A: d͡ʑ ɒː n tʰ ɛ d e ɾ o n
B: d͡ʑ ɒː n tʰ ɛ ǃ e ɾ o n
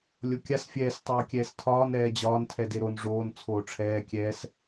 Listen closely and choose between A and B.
A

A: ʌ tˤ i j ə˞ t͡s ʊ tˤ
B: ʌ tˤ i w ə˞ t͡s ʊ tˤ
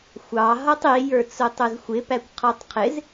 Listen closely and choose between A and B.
A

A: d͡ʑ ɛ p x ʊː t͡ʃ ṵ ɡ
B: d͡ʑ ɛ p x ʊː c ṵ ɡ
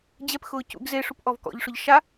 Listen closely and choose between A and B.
B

